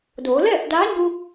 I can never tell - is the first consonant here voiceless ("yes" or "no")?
no